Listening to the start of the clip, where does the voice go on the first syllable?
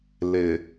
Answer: low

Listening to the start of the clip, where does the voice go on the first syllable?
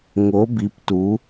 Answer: rising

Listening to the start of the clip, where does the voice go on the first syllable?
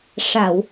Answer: low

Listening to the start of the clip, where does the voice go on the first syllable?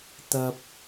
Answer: low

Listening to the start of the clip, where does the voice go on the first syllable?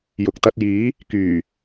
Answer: low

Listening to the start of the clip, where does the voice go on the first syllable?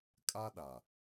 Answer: high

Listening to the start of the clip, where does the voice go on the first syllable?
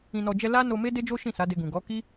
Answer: low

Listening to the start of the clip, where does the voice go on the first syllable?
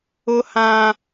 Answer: high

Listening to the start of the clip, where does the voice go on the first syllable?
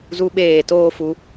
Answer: high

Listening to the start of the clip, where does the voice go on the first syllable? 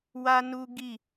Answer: high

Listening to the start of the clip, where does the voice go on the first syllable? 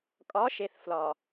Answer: rising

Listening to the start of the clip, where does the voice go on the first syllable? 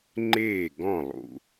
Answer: falling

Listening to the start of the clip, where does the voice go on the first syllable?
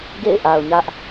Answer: falling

